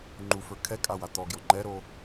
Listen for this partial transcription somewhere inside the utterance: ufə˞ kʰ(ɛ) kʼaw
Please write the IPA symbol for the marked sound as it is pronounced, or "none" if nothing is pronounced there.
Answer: ɛ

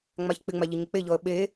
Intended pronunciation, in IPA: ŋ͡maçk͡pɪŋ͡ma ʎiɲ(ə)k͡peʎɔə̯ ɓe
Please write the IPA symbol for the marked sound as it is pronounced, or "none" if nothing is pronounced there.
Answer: ə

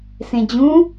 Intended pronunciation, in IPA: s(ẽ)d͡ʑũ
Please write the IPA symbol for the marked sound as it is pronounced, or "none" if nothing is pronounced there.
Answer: ẽ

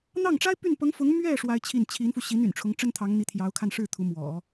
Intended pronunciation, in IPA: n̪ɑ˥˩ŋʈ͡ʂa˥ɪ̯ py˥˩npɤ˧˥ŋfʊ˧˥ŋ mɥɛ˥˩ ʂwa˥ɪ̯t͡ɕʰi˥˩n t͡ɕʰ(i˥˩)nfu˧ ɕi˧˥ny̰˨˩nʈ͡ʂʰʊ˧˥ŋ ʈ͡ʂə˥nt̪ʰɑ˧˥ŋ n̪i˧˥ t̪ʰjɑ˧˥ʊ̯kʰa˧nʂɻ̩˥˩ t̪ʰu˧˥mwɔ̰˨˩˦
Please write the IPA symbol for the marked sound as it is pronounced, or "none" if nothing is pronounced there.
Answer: i˧˥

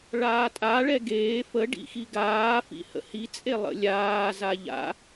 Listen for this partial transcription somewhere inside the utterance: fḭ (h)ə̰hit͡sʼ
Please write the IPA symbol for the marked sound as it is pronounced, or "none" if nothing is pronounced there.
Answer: h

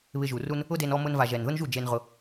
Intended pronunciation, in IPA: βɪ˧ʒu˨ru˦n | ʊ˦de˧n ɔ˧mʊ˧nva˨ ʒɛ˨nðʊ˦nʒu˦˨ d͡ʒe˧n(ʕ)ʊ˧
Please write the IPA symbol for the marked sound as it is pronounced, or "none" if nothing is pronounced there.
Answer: ʁ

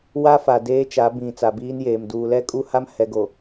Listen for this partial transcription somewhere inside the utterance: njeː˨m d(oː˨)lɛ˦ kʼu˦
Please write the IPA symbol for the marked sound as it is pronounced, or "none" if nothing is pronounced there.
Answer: uː˨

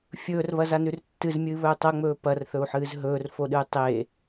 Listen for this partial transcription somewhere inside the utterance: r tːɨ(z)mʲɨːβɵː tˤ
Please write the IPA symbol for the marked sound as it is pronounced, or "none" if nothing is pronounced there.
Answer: z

